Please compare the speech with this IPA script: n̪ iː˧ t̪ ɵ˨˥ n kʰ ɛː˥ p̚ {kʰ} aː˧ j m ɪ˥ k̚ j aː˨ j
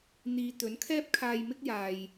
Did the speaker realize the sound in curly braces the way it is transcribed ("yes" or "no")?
yes